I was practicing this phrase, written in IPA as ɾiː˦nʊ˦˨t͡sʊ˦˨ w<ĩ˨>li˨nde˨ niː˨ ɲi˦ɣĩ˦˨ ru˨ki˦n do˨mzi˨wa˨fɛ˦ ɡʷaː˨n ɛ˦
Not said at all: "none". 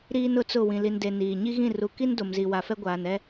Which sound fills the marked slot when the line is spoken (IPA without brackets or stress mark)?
ĩ˨